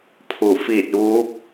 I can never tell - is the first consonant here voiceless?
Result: yes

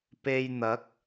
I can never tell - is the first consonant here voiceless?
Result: yes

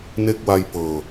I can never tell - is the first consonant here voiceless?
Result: no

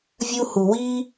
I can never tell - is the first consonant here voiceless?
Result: no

